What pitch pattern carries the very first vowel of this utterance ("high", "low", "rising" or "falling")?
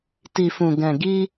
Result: low